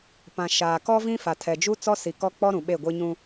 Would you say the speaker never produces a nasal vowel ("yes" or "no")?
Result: no